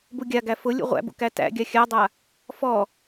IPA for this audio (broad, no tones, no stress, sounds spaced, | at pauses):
b u ɡʲ a ɡ æ f ʊ lʲ ṵ ʁʷ æ̰ b ṵ k æ t æ̰ ɡʲ a xʲ a dˤ a | f ɔ